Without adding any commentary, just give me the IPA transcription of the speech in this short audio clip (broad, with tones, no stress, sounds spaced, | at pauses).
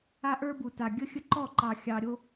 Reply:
a˦ ʔ ə˞˦ b u˨ t a˨ ɡʲ ə˦ xʲ ə˦ ǃ ɔ˦˨ ǃ ɑ˨ xʲ ɑ˨ ɾʲ o˦